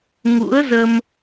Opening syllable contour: rising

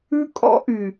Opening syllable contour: high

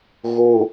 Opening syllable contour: low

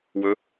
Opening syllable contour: rising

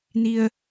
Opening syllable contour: low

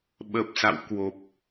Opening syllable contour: low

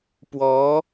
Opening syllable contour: rising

